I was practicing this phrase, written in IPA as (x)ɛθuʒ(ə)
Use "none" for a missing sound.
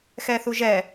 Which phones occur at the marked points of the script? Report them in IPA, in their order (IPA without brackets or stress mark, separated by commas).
x, ɛ